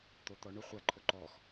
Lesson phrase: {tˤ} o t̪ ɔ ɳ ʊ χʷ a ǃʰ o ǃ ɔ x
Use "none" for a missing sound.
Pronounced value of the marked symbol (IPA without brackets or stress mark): t̪